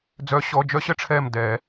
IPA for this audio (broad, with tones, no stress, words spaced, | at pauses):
d͡zœ˨˩˦ɕɔ˩˧˩d͡ʒœ˦ ɕə˦ʈ͡ʂʰɛ˧˩mdɛ˨˩˦